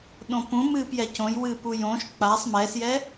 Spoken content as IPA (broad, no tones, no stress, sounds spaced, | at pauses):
ɗ õ p ũ m ɨː p j ɛ c õ j w ɨ p u j õ ʃ k͡p a sˤ m ɛ s j ɛ